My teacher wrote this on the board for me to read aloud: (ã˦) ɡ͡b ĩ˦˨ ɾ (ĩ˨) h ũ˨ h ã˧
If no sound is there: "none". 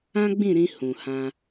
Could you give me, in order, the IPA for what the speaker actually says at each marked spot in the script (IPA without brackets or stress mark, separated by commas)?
ã˦, ĩ˧